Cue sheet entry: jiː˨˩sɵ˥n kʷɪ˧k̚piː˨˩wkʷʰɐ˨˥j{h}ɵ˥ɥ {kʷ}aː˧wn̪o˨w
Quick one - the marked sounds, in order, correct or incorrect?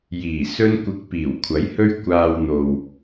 correct, correct

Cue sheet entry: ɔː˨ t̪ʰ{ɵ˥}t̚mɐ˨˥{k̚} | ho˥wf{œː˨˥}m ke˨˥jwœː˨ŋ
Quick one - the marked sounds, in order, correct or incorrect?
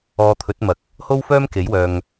incorrect: ɵ˨˥, correct, incorrect: œː˥

